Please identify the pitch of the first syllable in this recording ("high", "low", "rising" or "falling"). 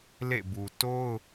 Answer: falling